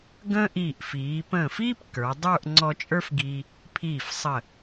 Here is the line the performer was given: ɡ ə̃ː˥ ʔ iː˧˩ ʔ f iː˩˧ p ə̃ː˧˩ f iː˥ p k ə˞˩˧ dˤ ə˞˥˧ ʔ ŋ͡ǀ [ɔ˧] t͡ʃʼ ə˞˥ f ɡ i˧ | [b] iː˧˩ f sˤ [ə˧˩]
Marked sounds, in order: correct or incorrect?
correct, incorrect: pʰ, correct

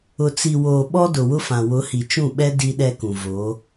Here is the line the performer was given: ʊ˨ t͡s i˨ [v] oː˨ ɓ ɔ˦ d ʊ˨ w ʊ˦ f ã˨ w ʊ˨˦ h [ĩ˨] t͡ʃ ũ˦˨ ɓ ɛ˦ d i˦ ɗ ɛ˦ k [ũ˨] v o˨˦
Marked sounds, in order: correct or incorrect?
incorrect: w, incorrect: i˨, correct

